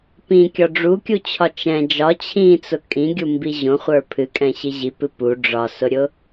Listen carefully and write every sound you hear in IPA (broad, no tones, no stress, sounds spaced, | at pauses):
p ĩ kʲ ɒ ɖ͡ʐ u kʲ u t͡ɕʰ ɒ t͡ʃ ɛ̃ d͡ʒ ɒ t͡ɕʰ ĩ t͡s ʊ kʼ ĩ ɡʲ u m b i ʑ õ χʷ ə˞ pʰ ɨ kʼ ɛ̃ ɕ i ʑ i p ɨ p u ɖ͡ʐ ɒ s ʊ ɾʲ ʊ